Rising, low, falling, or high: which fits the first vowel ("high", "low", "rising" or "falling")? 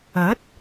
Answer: rising